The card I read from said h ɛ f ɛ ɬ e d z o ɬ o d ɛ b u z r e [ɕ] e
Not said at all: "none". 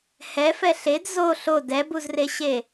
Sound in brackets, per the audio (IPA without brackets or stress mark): ɕ